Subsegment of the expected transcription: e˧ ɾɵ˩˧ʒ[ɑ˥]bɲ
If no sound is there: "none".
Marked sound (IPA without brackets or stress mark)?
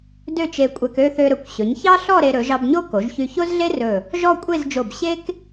ɑ˧